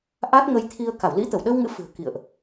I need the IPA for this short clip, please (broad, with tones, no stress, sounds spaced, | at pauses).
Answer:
ʔ a˦˥ t̚ ŋ ə˧ j t̪ʰ i˧ ə̯ k a˧˩ w l ḭ˧˥ t̪ ə˧˩ w ɗ əː˧ w ŋ ɨ̰˧˥ f ɨ̤˨˩ ə̯ k ḭ˧˨ ə̯ ʔ